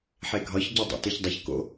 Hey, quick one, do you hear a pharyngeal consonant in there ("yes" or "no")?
yes